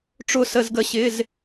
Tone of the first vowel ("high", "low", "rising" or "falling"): falling